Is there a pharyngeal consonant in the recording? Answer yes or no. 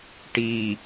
no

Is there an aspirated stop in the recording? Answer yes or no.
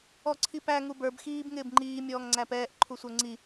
yes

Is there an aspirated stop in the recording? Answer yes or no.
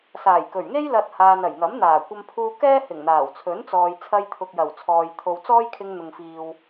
yes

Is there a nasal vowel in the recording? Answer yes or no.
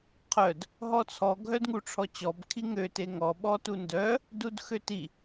no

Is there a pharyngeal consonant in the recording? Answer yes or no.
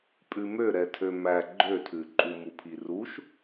no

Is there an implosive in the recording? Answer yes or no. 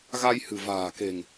no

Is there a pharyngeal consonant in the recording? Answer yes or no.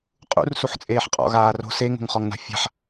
yes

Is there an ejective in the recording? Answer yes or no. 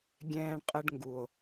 yes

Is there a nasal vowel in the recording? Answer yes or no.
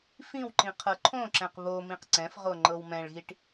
yes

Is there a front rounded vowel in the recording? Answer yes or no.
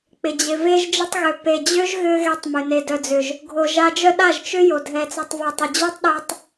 yes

